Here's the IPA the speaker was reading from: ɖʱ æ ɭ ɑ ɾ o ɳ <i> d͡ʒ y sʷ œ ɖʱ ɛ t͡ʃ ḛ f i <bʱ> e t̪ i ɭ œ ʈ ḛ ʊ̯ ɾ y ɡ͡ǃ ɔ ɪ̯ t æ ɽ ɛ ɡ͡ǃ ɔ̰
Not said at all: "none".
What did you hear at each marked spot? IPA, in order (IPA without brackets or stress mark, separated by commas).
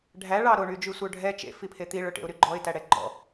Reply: y, pʰ